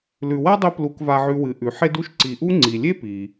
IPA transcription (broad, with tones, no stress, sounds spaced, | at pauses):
l ʉ˨ w a˥ dˤ ɵ˦ p l u˨ k v a˨ ʕ ʉ˨ w ɨ˩ ʔ ʉ˩ ħ e˦ d u˥ ʃ ǀ i˨ ʔ u˥ ŋ͡ǀ i˩ lʲ e˥ p i˩